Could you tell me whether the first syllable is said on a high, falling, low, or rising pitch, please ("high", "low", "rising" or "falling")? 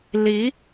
rising